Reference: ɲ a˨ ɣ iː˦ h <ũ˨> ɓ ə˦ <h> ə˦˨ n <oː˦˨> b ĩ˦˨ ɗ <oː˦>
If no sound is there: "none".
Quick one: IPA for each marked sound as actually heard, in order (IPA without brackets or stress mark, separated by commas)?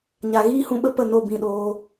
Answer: ũ˧, p, o˦˨, oː˦